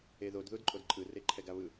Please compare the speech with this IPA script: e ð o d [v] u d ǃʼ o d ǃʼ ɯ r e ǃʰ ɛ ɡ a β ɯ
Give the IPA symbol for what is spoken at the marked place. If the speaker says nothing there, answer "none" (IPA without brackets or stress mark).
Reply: ð